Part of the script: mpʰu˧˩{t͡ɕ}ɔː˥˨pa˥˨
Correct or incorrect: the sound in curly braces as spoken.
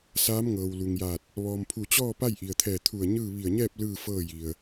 correct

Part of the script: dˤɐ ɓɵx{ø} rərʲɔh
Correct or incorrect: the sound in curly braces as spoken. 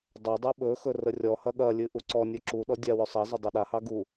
incorrect: ɵ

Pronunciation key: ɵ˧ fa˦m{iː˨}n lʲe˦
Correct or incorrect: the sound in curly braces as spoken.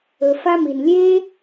incorrect: i˨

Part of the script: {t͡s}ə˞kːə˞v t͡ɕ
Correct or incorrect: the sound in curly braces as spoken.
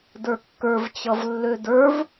incorrect: d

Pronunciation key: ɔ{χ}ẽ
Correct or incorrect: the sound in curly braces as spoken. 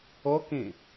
incorrect: k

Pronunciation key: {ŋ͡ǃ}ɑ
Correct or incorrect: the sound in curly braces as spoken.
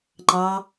correct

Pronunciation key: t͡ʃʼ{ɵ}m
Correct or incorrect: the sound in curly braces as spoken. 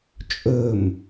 correct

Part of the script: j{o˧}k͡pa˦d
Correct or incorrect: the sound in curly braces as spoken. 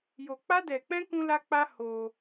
correct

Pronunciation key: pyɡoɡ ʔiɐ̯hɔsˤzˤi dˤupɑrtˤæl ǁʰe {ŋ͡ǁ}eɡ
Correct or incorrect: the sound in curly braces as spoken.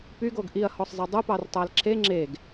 correct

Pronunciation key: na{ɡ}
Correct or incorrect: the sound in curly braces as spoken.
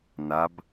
incorrect: b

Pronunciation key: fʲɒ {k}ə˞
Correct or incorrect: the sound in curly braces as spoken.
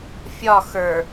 incorrect: x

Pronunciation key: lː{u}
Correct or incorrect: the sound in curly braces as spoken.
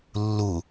correct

